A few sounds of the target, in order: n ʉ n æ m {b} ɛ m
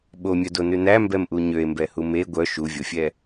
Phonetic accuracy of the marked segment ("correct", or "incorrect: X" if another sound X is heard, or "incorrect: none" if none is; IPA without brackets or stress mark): correct